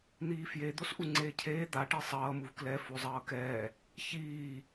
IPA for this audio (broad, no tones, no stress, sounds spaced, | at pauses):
n̪ iː f j e d̪ o s ʔ u ŋ͡ǀ eː cʰ eː d̪ a ʈ i sˤ ʌː m u v k l ɛ f o zˤ ʌː k ɛː | ç iː